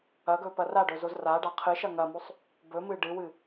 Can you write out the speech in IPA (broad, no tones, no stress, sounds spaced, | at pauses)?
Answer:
ɐ ɡ ɵ p ɐ r a ɖ ɵ z o z r a ɖ a qʰ ɨ ʃ ɐ ŋ ɐ m o sˤ | b ɵ m ɨ ɖ ɨ w ɨ